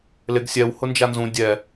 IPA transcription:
l ɪ ɡ sʲ ɛ w h ʊ n d͡ʒ a n z ũ dʲ ɛ

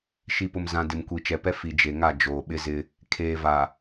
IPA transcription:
ʃ i˨ p ʊ˨ m z ã˨ d ɪ˨ m kʷ i˨ t͡ʃ ɛ˨ p ɛ˦ f i˨ d͡ʒ e˨ ŋ a˦˨ d͡ʒ oː˨ ɓ ɪ˦ z ɪ˦ | kʰ eː˨ v a˨

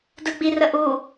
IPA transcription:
d ɯ ɡ͡b i r ə ʔ u

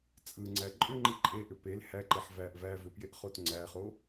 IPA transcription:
t͡sʼ ɯ ŋ͡ǀ æ ǃʼ ʏ ŋ͡ǃ i ǃʼ e ʔ ʏ p e l h æ ǃ e ħ v æ ʔ v æ v ʏ p j e ʔ χ o t ŋ͡ǀ æ χ o

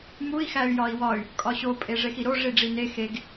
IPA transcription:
m u i̯ x æ y̯ j ɒ i̯ w ɒ y̯ | kʼ ɒ ɕ o pʼ e ʐ e x i ɾ o ʐ i ɖ͡ʐ i n e x e ɡ

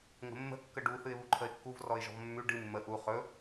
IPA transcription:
ŋ ə̤ mː ə̤ kː ə ɖ u θ ɨ ɪ̯ β u ǃʰ ə ɪ̯ kː u v r ɔ ɪ̯ ʒ ɔ̤ v mː ʉ ɖ ɨ mː ə ʔ u χ ɵ

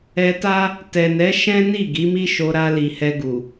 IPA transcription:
ɛ˧ t a˦ | t ɛ˨ n ɛ˨˦ ʃ ɛ̃˦ n i˦˨ ɡ i˨˦ m i˦ ʃ o˧ ɾ a˧ l i˨ h ɛ˧ ɡ u˨

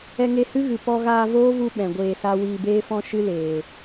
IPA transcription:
ɛ˧ ŋ e˧ h ɨ˦ ɣ ɨ˨ p ɔ˧ ɣ aː˧ v oː˦ v u˧ ɓ ɛ̃˨ ɡʷ eː˧ s a˦ w iː˧ b eː˦ f ɔ̃˦ ʃ ɨ˦ l eː˨

